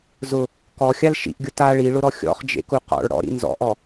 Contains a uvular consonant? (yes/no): yes